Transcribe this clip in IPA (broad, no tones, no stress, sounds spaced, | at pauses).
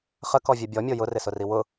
χ ə k ɔ vʲ e bʲ ɔ mʲ o j ʊ r ɪ s ʊ r i w ʊ